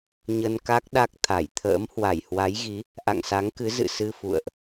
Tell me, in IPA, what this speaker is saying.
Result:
ɲə˧nka˦˥k̚ ɗa˦˥k̚ t̪ʰa˧˩jt̪ʰə̰ː˧˥m hwa˧˩jhwa˨˦jɣi˨˦ | ʔa̰˧˨ŋsa˨˦ŋkɨ˨˦ zɨ̰˧˨sɨ˧ fṵ˧˨ə̯ʔ

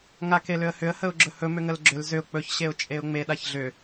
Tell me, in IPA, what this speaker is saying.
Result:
ŋakelʏə̯hʏə̯ həʊ̯ɡ͡ǁɵhɵ mʏŋəlɡ͡ǁʏl zʏʊ̯ k͡pɵç ɕeʊ̯t͡ʃʼeʊ̯ŋ͡me ɗaçɮʏ

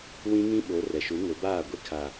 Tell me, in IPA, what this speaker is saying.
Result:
wĩ˦ŋĩ˦ɓo˨˦ rɛ˨ʃu˨˦ŋʊ˨˦baː˦˨ ɡʷi˦kʰa˨

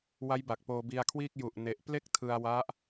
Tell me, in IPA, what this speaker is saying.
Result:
wa˦˥jba˨˩k̚ poː˧bi˧a̯kʰwiː˥˩k̚ ju˨˩ʔ ne˦˥ʔ ple˥˩k̚tʰɯ˧a̯wa˦˥ʔ

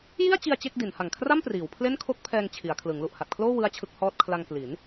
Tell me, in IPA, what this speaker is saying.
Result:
ji˥˩a̯t͡ɕi˧a̯ t͡ɕe˥˩k̚di˩˦nha˨˩ŋ kʰra˥˩mpriː˩˦w pʰle˥˩nkʰo˥˩k̚pʰɛː˧ŋ t͡ɕʰi˩˦a̯kʰlɯ˩˦ŋ lu˨˩ʔha˨˩t̚kʰloː˥˩ wɯ˥˩a̯t͡ɕʰɯ˥˩k̚hɔː˥˩t̚ kʰla˧ŋ kli˩˦n

